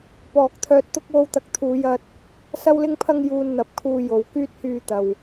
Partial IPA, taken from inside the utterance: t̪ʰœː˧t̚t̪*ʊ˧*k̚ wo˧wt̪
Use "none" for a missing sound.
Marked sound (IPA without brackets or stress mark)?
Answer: ʊ˥